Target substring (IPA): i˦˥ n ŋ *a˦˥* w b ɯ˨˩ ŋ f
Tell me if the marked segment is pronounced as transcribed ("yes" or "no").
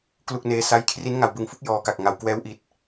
no